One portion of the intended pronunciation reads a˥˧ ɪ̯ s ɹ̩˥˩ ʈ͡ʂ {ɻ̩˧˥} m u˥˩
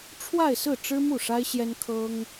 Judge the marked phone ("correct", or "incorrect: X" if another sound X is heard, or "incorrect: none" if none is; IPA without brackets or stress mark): incorrect: ɻ̩˥